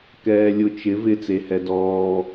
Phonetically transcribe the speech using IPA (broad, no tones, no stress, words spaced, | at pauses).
kɛːlʲʊ t͡ʃɪ vɪ t͡sehɛdɔː